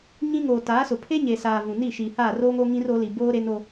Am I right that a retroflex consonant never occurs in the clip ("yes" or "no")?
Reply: yes